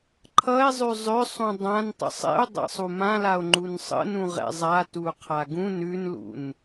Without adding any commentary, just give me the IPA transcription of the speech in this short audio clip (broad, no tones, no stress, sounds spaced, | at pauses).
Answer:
ǃʰ ʌ e̯ zˤ ʉ zˤ ʏ sˤ ũ dˤ ã n tˤ ə̰ sˤ ɛ̰ o̯ dˤ a̰ sˤ u m ã l a o̯ ŋ͡ǃ u n sˤ ə̰ n ũ ʁ ɛ̰ zˤ a t u qʰ a ɡ ũ n ʉ n l ṵ n